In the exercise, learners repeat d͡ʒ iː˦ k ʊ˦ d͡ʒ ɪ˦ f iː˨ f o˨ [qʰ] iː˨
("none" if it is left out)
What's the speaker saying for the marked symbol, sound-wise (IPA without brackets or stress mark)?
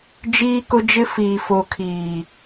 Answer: kʰ